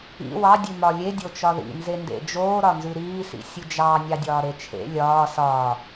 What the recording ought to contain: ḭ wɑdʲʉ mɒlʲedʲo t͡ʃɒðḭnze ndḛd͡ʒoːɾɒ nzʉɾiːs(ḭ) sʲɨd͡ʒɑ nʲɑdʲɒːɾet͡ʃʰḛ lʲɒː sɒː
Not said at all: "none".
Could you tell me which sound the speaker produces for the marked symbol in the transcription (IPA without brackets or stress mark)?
ḭ